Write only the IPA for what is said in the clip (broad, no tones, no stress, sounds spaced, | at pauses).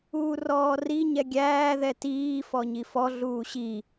uː r ɔː r i ɲ ɛ ɡʲ æː ð ɛ t iː f ɔ ɲ i f ɔ ɮ uː ɕ i